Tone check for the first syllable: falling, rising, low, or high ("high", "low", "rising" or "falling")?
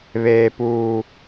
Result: low